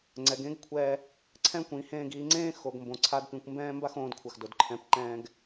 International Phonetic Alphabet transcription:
ŋ͡ǀ ɛ˩˧ ɡ ẽ˧˥ ɡ kʷʰ ɛː˧ | ǀʰ ɛ̃˥ kʷ ĩ˩˧ h ẽː˧ ɡ iː˩˧ ŋ͡ǀ ẽː˥ x o˩˧ ɡ m b õ˩˧ ǀʰ a˧˥ d p ĩ˩˧ kʷ m b ɛ̃ː˥ m b a˥ x õː˩˧ d kʷʰ a˩ x d o˩ d ǃʰ ɛ̃˩˧ p ǃ ɛ̃ː˧ ɡ

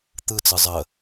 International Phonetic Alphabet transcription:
t̪ ɯ t͡s ɯ zˤ ə

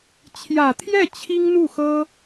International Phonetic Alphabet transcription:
t͡ɕʰ j ä˨˩ t̪ʰ j ɛ˥˩ t͡ɕʰ i˥ ŋ n̪ u˥˩ x ɤ˥

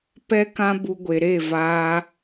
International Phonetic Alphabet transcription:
p ɛ˦ k ã˦ b u˧ ɡʷ e˨ ɾ e˦˨ v aː˦

